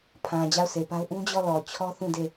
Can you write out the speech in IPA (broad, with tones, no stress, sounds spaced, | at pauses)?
pʰ ã˨ d͡ʑ a˦˨ ʊ̯ sʰ e˨ p a˦ ʊ̯ ʔ ũ˦ d͡ʑ ɔ˦˨ l ɔ˨ t͡ɕʰ ɔ˦ θ ũ˦˨ d e˦˨